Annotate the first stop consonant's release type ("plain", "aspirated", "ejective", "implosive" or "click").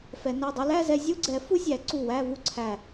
plain